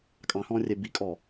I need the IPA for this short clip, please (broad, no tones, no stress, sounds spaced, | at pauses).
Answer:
kʼ ɑ̃ h ɔ̃ː rʲ ɛ b i kʼ ɔː